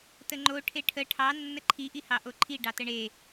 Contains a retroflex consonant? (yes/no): yes